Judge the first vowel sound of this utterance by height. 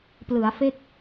high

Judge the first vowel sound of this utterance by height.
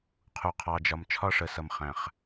high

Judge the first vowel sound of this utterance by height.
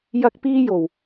low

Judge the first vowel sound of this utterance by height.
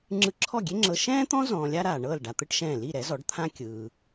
high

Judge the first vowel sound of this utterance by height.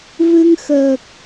high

